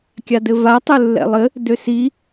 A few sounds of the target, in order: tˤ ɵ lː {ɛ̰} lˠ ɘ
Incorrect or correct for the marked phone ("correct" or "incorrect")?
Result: correct